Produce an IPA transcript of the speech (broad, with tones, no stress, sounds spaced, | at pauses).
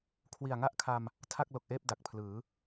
kʰ w i˨˩ a̯ ŋ a˥˩ ʔ kʰ a˧ m | tʰ a˥˩ k̚ l o˨˩ k̚ ʔ eː˥˩ p̚ d a˨˩ k̚ pʰ l ɯː˩˦